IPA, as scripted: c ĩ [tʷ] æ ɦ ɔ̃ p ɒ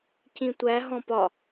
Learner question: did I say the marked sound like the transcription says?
yes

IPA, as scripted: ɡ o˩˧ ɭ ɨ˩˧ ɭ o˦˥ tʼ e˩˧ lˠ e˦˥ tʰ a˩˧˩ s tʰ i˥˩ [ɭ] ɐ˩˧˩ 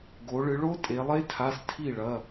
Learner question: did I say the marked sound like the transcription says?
yes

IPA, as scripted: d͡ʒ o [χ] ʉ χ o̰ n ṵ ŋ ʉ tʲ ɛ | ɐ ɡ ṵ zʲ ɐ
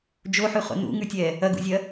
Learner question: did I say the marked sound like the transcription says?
no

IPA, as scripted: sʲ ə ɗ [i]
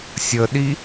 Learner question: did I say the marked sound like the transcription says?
yes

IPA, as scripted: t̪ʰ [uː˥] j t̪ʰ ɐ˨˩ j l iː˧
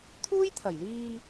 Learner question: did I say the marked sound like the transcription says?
yes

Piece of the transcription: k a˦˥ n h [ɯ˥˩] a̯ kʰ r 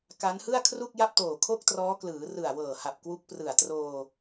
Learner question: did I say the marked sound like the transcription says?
yes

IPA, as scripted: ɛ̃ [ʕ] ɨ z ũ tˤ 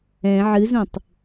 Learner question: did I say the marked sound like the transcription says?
yes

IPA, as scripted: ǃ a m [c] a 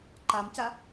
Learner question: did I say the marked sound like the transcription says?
yes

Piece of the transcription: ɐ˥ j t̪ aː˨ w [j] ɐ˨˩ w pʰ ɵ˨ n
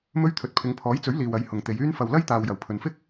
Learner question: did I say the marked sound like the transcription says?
yes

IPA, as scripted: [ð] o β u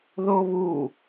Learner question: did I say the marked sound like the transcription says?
yes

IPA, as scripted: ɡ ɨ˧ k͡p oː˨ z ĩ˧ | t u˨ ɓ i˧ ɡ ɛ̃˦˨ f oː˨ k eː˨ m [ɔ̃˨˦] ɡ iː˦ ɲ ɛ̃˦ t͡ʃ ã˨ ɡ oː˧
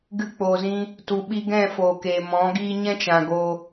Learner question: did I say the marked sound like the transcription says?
yes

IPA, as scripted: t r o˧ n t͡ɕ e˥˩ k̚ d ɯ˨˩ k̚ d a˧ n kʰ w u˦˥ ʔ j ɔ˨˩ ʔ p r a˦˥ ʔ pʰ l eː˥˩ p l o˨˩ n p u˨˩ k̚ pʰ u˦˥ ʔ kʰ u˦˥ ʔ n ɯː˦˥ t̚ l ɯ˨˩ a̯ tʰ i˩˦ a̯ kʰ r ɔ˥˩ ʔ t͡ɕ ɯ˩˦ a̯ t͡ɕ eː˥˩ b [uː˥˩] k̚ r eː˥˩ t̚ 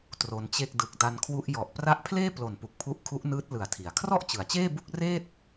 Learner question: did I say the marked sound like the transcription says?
no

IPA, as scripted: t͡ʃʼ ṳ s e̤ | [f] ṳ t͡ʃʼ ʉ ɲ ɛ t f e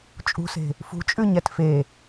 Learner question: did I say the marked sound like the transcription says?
yes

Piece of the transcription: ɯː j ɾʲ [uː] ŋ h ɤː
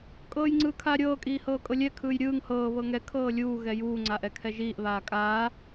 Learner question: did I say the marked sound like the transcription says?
no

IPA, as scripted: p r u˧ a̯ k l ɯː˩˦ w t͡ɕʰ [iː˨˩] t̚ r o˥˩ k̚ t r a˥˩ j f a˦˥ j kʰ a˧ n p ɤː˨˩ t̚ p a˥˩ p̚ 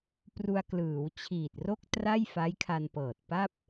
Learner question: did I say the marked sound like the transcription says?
yes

